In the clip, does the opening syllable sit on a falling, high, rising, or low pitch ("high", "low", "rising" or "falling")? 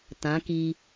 rising